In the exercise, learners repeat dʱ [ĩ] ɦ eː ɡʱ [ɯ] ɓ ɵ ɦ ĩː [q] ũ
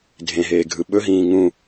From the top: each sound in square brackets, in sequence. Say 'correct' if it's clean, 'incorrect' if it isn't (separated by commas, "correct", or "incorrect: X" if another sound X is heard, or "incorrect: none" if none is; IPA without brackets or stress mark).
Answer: incorrect: ẽ, correct, incorrect: ŋ